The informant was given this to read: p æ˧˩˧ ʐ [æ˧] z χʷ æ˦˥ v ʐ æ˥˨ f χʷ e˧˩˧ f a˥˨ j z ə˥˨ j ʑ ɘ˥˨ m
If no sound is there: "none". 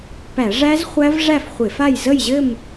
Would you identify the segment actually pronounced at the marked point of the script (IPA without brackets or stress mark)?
æ˦˥